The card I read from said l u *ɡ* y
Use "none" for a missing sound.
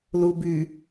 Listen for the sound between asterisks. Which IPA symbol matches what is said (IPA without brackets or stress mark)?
b